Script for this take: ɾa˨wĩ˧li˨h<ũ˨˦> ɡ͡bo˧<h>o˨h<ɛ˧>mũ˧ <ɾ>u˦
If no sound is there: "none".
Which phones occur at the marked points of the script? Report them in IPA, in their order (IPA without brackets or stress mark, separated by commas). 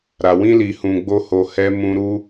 ũ˨, h, ɛ˧, ɾ